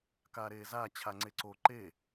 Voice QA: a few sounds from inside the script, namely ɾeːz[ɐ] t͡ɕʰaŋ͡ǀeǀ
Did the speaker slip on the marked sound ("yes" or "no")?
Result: yes